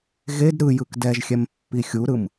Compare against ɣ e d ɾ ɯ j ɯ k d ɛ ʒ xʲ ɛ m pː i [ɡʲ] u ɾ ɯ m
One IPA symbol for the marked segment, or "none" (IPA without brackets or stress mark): xʲ